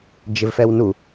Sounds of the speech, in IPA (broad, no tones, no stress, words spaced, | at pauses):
d͡ʒɪvfɛwnu